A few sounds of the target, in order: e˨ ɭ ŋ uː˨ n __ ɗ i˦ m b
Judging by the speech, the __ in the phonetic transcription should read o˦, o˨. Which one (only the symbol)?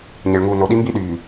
o˨